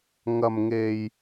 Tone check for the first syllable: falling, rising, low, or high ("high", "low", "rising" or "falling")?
low